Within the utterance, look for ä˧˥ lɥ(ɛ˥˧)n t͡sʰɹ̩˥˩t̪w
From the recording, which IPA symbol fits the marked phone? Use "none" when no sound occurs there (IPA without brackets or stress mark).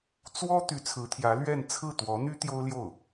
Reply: ɛ˥˧